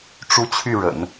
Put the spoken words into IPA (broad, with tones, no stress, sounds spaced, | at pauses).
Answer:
ʈ͡ʂ u˥ t͡ɕʰ y˥˩ ɻ ə̰˨˩˦ n